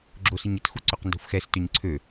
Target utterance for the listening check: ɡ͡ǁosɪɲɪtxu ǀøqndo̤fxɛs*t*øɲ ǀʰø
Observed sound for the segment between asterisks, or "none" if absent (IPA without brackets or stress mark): t